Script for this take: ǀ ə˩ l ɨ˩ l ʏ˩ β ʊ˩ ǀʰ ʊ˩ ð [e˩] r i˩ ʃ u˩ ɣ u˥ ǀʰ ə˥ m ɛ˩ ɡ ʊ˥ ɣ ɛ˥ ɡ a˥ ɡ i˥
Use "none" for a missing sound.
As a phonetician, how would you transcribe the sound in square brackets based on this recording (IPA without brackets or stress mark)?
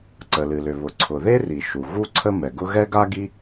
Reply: e˥